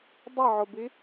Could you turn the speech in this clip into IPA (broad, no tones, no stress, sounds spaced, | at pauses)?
dˤ ə ʕ ʊ b i